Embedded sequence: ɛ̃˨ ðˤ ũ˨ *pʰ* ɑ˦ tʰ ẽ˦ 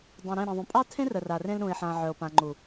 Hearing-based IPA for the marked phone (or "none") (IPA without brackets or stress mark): pʼ